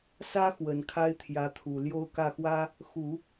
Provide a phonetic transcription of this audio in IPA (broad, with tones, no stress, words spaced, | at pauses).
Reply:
sä˥ xwə˨˩nkʰa˥ɪ̯t̪ʰjä˧˥t̪ʰu˨˩ ljo˥˧ʊ̯kä˥˩xwä˥ | xu˨˩˦